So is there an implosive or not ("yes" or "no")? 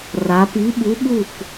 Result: yes